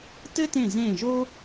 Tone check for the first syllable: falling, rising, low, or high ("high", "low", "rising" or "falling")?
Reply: high